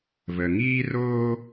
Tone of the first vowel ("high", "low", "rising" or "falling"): low